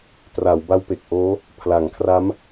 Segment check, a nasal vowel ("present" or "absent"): absent